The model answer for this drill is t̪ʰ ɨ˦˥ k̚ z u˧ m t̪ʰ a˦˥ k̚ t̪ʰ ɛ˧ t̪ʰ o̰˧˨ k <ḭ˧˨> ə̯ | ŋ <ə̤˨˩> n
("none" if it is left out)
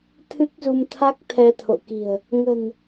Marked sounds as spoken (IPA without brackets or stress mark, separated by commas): i̤˨˩, ə̤˨˩